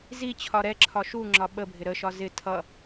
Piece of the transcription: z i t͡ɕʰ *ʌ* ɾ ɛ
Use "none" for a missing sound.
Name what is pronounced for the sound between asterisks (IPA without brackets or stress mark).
ɒ